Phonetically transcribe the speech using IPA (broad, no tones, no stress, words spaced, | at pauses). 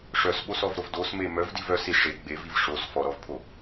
ʂœsɓosɔvɾov dosme mœvdiv œsi ʂe ɡ͡beviv ʂos fɔɾɔvpʰo